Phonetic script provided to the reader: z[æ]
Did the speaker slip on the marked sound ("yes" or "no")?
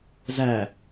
no